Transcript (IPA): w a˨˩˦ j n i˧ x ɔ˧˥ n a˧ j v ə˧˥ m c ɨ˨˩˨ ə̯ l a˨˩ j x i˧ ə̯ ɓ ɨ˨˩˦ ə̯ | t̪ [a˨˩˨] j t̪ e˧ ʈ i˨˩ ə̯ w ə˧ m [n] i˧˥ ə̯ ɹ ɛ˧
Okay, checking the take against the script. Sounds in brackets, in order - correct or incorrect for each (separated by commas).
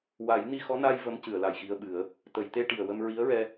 incorrect, incorrect